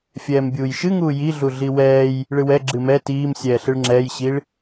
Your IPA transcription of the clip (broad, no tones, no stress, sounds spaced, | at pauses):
fʲ ɛː m bʲ uː j ʃ ɨ ŋ uː j i ɮ u ɮ i w ɛː j | ɭ ɨ w ɛ ɡ͡ǁ ɨ m ɛ t iː m sʲ ɛː ɬ ɨ ɭ ŋ͡ǁ ɛː j ɕ i ɭ